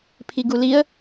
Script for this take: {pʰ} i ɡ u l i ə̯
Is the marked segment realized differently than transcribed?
no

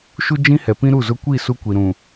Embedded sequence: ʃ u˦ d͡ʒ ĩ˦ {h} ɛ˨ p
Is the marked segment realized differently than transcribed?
no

